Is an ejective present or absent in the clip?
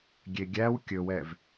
absent